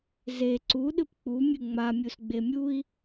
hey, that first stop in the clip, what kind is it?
click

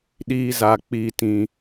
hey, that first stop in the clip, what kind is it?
implosive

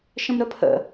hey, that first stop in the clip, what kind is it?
aspirated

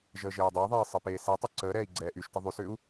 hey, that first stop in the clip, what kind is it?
plain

